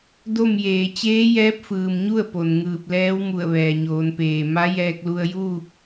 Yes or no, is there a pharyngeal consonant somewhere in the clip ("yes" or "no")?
no